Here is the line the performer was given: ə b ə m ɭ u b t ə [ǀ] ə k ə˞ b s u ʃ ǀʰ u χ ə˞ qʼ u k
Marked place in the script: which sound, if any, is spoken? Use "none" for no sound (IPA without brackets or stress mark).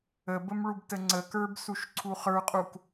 ŋ͡ǀ